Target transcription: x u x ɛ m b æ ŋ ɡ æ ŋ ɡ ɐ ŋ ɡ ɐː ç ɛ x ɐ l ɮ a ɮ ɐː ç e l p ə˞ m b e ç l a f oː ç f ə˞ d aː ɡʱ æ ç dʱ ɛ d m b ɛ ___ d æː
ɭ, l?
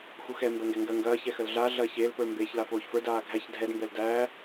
l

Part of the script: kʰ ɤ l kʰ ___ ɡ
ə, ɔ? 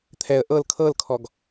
ɔ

